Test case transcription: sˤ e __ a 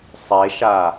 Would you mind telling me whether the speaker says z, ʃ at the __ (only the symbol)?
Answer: ʃ